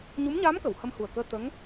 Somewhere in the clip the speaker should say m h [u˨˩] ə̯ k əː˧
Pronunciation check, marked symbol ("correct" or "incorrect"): correct